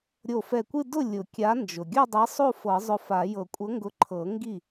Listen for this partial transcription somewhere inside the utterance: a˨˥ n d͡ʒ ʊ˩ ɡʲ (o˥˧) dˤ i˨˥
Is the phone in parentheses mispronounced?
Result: no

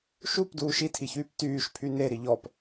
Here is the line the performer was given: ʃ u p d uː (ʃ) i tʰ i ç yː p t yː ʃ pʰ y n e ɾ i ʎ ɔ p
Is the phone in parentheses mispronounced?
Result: no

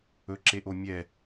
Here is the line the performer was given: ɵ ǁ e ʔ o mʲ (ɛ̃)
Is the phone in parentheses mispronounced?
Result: yes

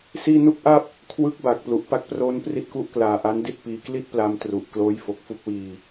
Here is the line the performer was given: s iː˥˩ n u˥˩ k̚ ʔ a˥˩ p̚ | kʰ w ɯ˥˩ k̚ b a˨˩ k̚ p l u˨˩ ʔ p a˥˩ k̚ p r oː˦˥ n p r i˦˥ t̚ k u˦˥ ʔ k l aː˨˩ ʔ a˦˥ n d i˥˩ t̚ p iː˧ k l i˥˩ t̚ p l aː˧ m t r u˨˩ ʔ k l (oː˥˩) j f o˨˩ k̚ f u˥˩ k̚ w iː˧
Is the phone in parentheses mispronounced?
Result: yes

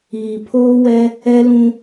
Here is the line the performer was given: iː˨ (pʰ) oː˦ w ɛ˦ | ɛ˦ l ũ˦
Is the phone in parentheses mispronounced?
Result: no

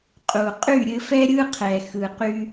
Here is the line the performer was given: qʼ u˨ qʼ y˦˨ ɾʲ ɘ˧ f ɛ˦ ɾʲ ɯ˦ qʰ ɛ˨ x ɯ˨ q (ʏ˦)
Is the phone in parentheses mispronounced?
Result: yes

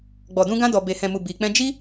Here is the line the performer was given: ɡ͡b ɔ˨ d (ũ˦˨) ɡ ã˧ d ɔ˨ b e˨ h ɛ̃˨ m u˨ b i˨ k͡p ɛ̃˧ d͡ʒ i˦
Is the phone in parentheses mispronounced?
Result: yes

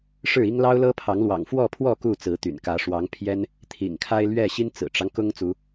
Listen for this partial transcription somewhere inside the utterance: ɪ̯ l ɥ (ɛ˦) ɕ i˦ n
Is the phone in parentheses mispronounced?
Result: yes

